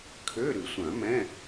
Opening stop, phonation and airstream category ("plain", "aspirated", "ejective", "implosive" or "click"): aspirated